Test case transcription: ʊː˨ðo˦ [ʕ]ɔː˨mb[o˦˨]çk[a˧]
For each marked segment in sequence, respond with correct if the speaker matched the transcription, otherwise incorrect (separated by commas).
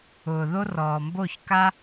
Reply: incorrect, correct, incorrect